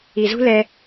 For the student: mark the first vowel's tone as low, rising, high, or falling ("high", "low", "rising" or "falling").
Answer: low